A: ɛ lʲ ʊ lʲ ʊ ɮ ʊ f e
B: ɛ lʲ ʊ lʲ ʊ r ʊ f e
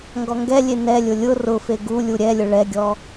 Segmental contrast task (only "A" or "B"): B